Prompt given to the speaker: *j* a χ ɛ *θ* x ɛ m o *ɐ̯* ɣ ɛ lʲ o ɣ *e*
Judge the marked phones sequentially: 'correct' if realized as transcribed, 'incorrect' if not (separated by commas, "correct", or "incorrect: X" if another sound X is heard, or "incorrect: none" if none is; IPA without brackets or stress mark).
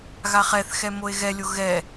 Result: incorrect: ɣ, correct, incorrect: e̯, incorrect: ɛ